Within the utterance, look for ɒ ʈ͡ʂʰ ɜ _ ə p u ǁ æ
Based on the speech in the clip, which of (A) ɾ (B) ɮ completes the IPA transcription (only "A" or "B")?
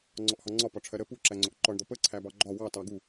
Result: A